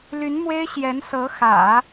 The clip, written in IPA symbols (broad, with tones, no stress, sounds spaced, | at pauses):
l y˧˥ n m w e˥ ɪ̯ ɕ j ɛ˧˥ n s ɤ˧˥ x ä̰˨˩˦